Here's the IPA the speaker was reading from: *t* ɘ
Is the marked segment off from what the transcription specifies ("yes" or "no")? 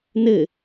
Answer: yes